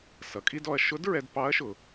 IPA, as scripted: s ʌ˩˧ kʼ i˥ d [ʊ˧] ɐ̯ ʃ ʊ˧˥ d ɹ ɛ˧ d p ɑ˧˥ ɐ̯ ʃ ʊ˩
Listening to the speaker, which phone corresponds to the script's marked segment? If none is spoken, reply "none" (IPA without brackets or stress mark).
ɔ˧